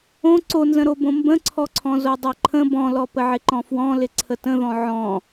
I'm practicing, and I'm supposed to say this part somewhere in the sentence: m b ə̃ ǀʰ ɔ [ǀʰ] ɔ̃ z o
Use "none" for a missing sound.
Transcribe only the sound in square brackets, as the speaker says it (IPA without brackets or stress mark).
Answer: ǀʰ